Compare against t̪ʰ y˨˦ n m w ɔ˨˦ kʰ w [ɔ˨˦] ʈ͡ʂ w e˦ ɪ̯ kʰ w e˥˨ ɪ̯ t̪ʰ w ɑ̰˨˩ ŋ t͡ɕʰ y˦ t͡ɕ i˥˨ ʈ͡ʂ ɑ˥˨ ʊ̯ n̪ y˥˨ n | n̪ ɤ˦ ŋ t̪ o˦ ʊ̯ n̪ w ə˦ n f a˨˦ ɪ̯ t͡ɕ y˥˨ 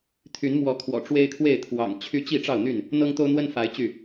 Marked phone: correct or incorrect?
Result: incorrect